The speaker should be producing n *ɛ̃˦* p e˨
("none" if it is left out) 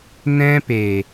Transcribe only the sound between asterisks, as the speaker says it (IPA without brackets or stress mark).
ɛ̃˦